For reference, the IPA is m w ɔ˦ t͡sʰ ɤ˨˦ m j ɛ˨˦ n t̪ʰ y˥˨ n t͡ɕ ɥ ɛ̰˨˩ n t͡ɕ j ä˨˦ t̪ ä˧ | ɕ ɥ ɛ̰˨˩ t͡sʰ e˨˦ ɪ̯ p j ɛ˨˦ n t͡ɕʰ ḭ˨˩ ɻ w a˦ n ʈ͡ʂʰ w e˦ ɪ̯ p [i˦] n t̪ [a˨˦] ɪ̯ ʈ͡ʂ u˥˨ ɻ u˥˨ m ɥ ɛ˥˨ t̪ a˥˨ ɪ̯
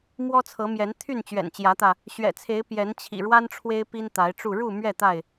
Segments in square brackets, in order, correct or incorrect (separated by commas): correct, correct